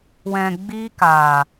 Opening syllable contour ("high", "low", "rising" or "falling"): low